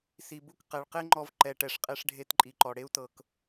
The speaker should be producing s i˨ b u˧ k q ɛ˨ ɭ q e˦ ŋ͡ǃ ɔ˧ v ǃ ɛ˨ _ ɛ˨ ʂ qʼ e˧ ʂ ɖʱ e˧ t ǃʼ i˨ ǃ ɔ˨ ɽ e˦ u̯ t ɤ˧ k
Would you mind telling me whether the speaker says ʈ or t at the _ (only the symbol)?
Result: ʈ